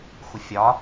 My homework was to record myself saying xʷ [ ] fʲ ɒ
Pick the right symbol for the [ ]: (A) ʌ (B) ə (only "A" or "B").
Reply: B